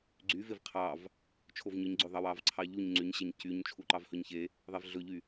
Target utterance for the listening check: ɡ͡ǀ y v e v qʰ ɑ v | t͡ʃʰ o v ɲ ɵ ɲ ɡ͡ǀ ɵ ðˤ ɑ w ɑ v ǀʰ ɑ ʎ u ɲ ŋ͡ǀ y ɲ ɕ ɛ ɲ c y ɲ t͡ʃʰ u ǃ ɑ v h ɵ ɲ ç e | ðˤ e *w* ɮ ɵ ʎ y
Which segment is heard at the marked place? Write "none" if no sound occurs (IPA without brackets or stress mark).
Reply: v